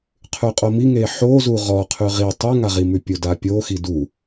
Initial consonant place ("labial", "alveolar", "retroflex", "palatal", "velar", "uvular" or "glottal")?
uvular